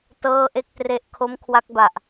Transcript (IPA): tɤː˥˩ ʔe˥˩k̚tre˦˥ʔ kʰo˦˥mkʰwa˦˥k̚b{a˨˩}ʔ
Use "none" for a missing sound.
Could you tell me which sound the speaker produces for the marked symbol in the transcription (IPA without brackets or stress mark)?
a˨˩